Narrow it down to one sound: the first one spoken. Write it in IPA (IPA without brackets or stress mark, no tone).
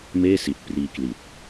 m